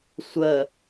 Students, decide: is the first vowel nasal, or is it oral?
oral